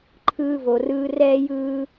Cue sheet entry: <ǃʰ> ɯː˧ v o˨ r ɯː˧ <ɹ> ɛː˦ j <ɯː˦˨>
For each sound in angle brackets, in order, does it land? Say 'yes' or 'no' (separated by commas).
yes, no, no